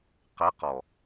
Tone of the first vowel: rising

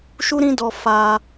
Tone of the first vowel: high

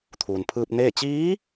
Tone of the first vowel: low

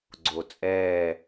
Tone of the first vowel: low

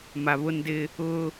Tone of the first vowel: low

